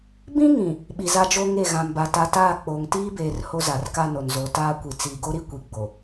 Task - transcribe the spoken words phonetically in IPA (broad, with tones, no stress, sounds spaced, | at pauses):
b ĩ˦ ŋ ĩ˨ | ɓ i˨ z a˦ d͡ʒ o˦ ŋ e˦˨ ɣ ã˨ m b a˨ t a˨ t aː˦˨ k͡p oː˨ ŋ t iː˦ b eː˨ r h o˦ z a˨ r k a˦ n o˨ n z o˨ t aː˦ kʷ i˨ t͡s iː˨ ɡ o˦ ɾ i˦ kʷ i˨ ɡ͡b o˨